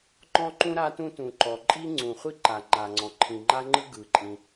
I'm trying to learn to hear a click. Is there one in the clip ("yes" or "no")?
yes